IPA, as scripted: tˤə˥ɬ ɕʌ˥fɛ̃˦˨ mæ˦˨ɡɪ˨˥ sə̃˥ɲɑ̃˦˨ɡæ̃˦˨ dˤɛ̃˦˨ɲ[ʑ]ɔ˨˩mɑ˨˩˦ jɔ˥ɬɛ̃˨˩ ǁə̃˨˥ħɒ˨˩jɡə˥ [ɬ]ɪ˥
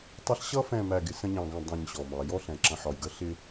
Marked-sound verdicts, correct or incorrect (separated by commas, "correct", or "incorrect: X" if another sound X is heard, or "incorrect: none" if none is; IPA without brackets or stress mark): incorrect: ɕ, correct